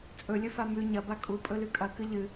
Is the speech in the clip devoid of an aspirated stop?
yes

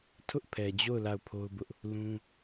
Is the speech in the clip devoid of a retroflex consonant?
yes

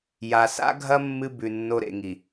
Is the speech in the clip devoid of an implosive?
yes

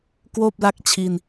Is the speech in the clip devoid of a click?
yes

